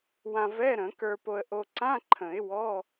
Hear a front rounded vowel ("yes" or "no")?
no